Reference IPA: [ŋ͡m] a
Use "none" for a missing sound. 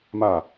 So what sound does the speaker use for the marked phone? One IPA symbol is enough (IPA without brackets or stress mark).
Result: m